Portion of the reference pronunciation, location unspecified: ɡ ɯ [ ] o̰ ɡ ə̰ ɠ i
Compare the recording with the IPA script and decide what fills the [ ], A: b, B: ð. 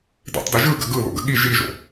B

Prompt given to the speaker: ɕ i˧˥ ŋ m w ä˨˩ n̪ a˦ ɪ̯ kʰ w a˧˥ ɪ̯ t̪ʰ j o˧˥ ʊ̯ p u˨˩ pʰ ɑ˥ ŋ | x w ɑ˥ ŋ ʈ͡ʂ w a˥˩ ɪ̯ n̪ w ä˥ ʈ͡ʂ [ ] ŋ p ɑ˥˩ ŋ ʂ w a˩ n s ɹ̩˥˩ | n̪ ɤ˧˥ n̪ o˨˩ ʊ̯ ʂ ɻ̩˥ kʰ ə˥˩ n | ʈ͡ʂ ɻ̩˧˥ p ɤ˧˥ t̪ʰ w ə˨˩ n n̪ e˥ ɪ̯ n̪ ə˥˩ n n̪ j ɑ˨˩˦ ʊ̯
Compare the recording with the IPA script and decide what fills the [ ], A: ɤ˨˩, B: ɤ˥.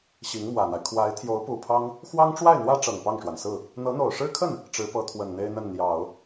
A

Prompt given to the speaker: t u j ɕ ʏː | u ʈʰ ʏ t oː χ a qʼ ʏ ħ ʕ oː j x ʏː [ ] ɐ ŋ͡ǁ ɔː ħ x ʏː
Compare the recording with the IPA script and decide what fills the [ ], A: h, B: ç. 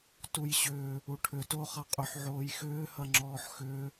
A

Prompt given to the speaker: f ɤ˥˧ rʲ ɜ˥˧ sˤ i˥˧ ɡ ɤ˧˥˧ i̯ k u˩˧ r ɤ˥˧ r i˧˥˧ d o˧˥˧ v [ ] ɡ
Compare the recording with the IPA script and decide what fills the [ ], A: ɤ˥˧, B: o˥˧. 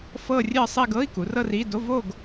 B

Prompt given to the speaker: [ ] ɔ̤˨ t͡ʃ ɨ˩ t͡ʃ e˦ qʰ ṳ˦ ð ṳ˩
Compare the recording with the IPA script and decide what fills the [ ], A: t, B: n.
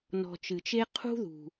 B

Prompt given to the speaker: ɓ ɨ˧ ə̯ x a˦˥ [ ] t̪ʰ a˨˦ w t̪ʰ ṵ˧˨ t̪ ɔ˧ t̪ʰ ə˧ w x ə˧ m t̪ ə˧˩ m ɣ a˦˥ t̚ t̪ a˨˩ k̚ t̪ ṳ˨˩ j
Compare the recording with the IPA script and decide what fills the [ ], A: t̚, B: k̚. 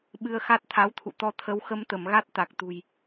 A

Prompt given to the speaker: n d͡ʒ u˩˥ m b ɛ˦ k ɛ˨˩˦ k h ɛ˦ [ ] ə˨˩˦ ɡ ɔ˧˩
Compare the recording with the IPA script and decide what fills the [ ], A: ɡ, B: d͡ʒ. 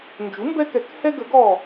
A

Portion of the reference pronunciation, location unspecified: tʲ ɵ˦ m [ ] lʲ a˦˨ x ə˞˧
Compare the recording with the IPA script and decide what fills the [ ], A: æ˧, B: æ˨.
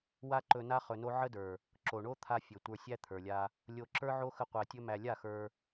A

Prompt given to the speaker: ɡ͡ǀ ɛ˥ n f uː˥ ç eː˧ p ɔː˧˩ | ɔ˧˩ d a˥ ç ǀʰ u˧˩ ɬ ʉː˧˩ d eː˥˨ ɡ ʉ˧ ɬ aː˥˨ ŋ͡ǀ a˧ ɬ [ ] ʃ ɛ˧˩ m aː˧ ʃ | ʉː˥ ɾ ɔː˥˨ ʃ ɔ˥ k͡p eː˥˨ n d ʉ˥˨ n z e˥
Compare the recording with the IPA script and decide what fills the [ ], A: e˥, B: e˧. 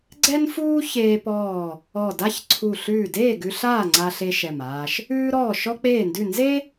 B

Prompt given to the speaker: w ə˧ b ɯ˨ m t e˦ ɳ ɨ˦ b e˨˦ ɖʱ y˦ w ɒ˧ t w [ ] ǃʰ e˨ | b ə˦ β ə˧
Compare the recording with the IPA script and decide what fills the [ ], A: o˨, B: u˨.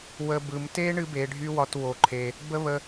A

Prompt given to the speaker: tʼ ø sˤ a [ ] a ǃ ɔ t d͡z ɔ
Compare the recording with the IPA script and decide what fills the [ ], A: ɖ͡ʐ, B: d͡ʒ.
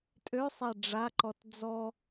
A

